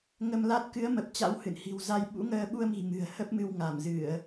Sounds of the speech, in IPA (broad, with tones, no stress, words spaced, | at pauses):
ŋə˧mla˦˥t̚ kɨ˨˦ə̯mə˨˩p̚ t͡ɕa̰˧˥whɨ̰˧˨nhi̤˨˩wza˧j ɓṵ˧˥ŋəː˧ɓu˧ə̯mi̤˨˩ mɨ̤˨˩ə̯hə˦˥p̚mɨ˧w ŋa˧˩mzɨ˧˩˨ə̯